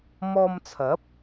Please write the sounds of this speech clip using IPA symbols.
m ɔː˧ m t͡sʰ ɐ˨˥ p̚

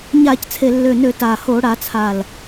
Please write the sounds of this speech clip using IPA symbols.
ɲ a˧˩˧ c t͡sʰ e˨˩ lː ø˨˩ n ø˧˩˧ t a˨˩ h o˧˩˧ ɽ a˧˩˧ t͡sʰ a˨˩ l

